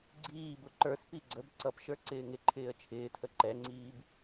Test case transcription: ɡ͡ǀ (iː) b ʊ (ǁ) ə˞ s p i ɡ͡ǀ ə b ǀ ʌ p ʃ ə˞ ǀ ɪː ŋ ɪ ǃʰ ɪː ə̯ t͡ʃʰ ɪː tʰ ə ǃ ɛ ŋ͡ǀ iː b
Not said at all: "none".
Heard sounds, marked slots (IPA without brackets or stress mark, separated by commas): iː, ǃ